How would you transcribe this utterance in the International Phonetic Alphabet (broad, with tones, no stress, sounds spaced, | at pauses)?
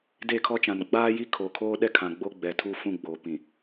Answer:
d e˦˨ kʰ ɔ˦ t͡ʃ ã˨ n ɡ͡b aː˦ j i˦ kʰ o˨ kʰ oː˦ ɗ ɛ˦ kʰ ã˨ ɡ͡b o˦ ɡ͡b ɛ˨ tʰ uː˦ f ũ˦˨ ɡ͡b oː˨ p ĩ˨